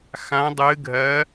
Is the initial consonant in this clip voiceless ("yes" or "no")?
yes